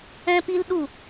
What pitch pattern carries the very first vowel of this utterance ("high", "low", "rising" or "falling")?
high